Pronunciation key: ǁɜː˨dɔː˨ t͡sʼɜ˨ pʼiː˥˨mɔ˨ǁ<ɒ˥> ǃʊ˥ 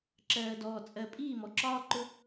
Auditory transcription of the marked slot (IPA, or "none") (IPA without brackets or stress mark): ɒː˥